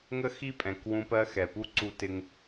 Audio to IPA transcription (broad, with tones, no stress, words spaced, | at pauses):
ŋə˦xi˦pʼɛ̃˨k wũ˧pɜ˧ xɛ˨pu˦ ǀu˧tɪ˧ŋ